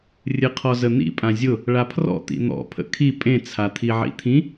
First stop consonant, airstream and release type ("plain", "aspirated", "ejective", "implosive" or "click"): aspirated